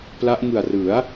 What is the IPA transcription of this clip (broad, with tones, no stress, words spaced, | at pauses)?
pla˦˥ʔŋɯ˨˩a̯ rɯ˩˦a̯